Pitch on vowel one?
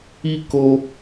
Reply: high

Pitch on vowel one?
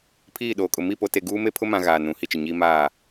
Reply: falling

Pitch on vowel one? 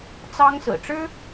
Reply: high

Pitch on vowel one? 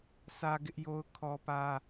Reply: high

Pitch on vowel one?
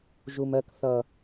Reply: low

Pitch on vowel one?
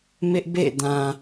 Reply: high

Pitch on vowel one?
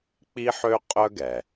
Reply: high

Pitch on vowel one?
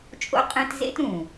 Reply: high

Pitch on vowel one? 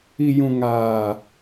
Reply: low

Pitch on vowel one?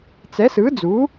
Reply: rising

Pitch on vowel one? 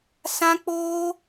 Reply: high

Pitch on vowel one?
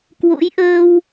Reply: rising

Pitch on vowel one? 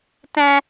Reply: high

